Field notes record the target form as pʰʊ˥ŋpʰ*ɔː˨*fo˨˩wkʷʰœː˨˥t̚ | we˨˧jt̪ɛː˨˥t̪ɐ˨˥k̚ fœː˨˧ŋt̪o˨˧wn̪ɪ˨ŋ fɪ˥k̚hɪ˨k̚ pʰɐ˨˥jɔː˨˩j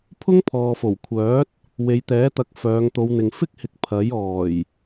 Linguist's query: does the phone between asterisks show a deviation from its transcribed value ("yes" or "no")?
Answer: no